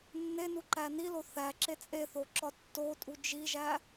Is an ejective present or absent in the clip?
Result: present